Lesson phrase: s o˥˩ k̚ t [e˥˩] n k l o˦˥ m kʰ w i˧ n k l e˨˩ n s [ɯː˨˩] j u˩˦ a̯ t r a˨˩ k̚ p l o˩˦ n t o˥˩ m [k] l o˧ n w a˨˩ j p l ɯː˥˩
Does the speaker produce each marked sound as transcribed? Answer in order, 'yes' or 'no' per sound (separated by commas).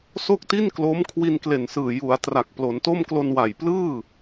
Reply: no, yes, yes